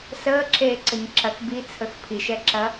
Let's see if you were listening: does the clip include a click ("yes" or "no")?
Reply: yes